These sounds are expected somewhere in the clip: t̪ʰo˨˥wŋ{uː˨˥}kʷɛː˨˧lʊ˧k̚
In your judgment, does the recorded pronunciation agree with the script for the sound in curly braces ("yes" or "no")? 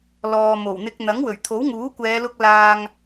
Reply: yes